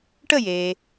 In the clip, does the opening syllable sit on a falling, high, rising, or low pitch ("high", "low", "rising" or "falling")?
falling